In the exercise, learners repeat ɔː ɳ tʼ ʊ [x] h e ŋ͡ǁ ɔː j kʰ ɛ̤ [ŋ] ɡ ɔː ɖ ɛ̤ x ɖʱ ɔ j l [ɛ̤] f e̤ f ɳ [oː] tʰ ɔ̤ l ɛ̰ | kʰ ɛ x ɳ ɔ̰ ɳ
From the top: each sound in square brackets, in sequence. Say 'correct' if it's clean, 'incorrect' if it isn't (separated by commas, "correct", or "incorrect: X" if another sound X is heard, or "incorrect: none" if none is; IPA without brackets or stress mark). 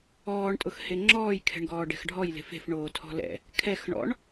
correct, incorrect: ɳ, incorrect: e̤, correct